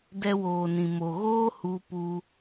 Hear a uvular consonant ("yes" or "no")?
no